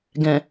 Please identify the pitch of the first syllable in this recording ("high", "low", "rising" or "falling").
low